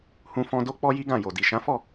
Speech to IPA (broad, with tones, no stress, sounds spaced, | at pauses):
h ũ˧ f ɔ̃˧ d o˦ k͡p ɔ˦ j i˦ ɡ ã˦˨ j o˨ d i˨ ʃ ã˨˦ f ɔ˦˨